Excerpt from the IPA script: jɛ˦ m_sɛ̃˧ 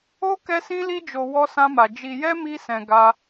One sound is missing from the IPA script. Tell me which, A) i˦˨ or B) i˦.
B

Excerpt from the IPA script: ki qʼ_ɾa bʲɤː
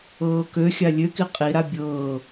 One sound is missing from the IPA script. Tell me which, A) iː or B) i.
B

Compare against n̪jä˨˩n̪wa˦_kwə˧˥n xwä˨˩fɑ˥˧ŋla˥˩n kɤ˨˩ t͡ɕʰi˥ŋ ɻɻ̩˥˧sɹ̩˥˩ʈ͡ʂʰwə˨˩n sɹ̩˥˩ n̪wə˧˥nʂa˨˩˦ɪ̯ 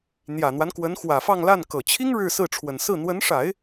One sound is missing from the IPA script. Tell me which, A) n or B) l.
A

